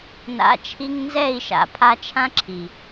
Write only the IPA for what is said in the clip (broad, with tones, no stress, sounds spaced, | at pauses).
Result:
n a̰˨˦ t͡ʃʰ i˧ ŋ n z ɛ˦˨ i̯ ʃ a̰˨ pʰ a˧ t͡ʃʰ ã˦ ǁʰ i˨